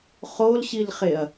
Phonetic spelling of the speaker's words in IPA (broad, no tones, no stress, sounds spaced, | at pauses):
χ o l ɕ i l χ e ɐ̯